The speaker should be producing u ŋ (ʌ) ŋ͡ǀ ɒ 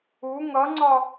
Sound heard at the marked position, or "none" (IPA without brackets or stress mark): ʌ